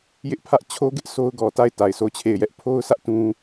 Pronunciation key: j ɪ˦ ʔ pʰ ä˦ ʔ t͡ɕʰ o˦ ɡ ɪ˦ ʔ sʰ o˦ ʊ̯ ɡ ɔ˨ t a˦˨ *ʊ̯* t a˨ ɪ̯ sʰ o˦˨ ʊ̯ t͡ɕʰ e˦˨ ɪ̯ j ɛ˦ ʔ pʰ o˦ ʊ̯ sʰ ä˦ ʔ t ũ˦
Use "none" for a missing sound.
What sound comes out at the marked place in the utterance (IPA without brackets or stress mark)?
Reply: ɪ̯